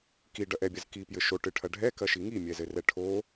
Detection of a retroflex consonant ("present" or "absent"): present